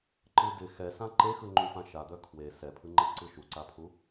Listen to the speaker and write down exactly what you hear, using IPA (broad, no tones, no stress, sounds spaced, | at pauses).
ǃ ɯ d ɪ x ɛ s ã ǃ e x ɯ ŋ͡ǃ u f ã ʃ a d̪ œ kʰ w e s ɛ pʰ ɯ ŋ͡ǃ e ǀ ɯ ʃ u ǀ a pʰ u